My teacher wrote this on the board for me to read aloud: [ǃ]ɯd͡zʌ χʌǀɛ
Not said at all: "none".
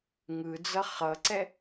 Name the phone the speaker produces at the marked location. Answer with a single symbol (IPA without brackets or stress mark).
ŋ